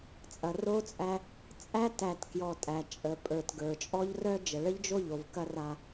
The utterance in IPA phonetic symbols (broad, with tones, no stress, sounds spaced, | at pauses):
t͡sʼ ɐ˨ r o˦ t͡sʼ æ˦ | t͡sʼ æ˦ t æ˨ t k j ɔ˨ tʼ æ˨ t͡ʃʼ ə˨ pʼ ə˞˨ t ɡ ə˞˨ t͡ʃʼ ɔ˦ ʎ r œ˦ d͡ʒ ə˨ ɭ ə˦ ʎ d͡ʒ o˦˨ ʎ o˨ v k ɐ˦ r a˦